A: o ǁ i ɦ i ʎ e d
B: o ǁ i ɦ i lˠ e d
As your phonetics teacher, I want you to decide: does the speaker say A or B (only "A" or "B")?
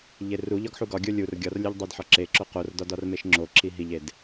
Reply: A